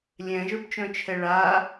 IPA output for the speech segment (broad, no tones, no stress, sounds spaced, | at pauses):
lʲ ɛ̃ ʒ ə˞ b t͡ʃ œ̃ t͡ʃʰ ɛ ɭ a